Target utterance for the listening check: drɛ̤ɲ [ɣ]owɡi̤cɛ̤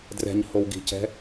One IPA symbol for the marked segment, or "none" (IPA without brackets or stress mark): h